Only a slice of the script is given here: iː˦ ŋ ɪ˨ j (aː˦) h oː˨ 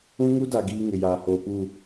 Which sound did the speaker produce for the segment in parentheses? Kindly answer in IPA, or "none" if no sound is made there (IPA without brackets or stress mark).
aː˨